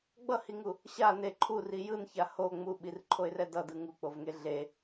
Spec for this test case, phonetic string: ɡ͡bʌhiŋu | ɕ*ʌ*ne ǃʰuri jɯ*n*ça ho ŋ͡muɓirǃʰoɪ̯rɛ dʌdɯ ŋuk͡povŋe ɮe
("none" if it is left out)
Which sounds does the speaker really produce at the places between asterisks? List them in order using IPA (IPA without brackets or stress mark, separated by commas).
a, n